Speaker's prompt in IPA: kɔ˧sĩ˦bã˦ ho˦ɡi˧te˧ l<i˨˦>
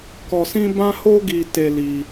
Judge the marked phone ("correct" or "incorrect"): incorrect